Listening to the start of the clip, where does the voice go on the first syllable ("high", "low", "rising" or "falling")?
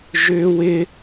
high